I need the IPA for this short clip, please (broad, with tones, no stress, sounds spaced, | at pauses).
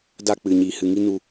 d a˦˨ k͡p ɨ˨ ɲ iː˨ h ɨ˨ ŋ i˦ n u˧